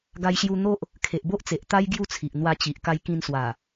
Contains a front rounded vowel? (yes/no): no